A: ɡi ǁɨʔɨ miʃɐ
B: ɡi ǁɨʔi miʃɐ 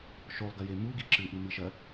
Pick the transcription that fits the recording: B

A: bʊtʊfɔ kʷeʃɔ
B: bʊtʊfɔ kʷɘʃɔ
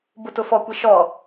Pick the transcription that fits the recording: A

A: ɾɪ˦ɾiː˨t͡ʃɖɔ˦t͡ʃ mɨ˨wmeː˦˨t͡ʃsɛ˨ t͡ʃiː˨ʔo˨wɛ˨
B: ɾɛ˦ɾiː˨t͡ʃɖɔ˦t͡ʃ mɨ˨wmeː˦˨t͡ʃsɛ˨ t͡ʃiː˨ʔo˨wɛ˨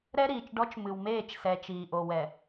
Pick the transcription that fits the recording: B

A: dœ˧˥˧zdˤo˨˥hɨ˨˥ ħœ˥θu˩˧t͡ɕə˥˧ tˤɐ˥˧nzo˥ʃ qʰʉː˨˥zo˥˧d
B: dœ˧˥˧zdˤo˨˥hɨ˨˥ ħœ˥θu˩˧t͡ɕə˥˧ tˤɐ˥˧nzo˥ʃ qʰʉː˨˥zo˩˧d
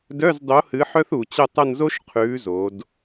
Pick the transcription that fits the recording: B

